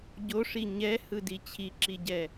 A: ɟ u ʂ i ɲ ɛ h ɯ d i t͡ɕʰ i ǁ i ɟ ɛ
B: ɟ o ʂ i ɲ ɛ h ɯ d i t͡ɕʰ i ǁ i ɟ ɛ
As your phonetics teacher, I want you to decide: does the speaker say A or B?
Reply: B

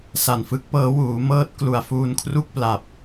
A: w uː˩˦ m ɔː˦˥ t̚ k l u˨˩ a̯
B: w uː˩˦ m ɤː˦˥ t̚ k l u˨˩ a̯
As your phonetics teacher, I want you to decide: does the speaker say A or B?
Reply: B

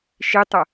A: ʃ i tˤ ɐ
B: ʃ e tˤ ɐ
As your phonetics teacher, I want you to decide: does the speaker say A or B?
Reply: A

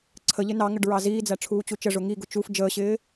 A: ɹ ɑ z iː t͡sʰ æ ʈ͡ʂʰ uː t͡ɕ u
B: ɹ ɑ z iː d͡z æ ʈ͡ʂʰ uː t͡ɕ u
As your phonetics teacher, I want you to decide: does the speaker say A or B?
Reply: B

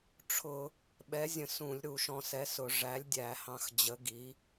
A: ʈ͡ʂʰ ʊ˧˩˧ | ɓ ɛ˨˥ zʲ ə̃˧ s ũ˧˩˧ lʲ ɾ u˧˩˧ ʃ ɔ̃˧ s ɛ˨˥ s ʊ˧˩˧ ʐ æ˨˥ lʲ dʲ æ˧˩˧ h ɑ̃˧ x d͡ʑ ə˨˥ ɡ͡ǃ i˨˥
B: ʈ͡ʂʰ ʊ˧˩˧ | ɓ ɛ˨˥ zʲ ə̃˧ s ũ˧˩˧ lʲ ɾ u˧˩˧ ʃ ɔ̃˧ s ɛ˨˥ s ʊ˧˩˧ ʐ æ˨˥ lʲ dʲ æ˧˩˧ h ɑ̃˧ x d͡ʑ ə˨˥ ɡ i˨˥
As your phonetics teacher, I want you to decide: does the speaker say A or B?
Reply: B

